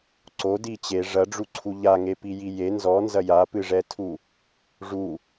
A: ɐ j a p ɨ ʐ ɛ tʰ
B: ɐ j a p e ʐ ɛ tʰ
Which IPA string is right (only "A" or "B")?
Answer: A